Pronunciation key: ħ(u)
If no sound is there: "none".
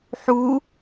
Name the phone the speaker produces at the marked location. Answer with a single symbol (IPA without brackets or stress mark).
u